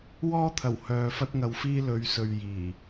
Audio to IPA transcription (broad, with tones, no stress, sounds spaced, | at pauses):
w ɔː˥ t̪ʰ ɐ˨˩ w h œː˨ f ɐ˥ t̚ ŋ ɐ˧ w f iː˥ l ɵ˨˧ ɥ s ɵ˨ ɥ j iː˨˩